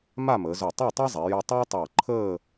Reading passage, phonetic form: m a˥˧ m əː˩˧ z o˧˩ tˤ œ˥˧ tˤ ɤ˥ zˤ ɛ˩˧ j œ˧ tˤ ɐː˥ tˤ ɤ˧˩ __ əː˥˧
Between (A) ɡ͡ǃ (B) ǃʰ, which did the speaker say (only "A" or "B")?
B